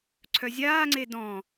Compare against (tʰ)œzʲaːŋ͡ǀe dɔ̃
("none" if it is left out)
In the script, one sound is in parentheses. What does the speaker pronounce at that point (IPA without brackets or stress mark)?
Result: ǀʰ